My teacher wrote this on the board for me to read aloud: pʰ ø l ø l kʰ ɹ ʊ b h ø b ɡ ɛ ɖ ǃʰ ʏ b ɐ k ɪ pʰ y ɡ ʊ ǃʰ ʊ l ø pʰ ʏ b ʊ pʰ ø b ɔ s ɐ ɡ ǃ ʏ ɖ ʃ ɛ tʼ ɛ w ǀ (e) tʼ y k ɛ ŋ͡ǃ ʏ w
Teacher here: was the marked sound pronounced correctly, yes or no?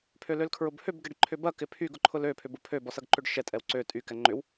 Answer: no